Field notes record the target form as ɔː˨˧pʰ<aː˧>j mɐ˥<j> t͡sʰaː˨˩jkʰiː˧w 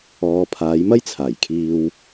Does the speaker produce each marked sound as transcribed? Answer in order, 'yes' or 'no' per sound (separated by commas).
no, yes